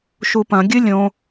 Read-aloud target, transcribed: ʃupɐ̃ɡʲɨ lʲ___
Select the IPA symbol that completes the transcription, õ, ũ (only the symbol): õ